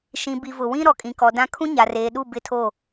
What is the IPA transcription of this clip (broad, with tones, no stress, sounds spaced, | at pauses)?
ʃ ĩ˨ b i˨ v ʊ˨ w ĩ˦ ɾ ɔ˨ kʼ ĩ˨ k ɔ˨ d ã˦ kʰ ũ˦ ɲ a˨ r eː˨ ɗ u˦˨ b ɪ˦ tʰ o˦˨